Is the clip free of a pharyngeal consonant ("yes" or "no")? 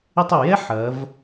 no